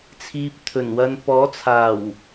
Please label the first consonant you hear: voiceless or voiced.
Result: voiceless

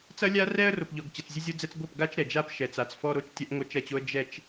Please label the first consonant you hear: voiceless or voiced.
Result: voiceless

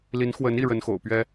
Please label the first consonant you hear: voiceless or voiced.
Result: voiced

